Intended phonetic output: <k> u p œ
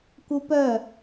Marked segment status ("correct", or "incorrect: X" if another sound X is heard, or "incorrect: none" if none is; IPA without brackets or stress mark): correct